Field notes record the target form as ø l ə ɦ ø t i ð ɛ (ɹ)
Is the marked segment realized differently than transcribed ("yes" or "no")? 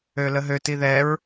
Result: no